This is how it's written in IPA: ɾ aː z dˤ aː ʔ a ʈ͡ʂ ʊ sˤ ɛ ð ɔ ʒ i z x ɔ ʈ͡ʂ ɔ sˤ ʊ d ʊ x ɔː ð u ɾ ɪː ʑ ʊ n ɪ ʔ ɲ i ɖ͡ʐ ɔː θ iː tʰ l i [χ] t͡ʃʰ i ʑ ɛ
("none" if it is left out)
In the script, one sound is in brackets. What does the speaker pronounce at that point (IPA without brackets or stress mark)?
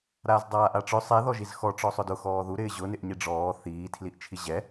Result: ʔ